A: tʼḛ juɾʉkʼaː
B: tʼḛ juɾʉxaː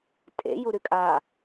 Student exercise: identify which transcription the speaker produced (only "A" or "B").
A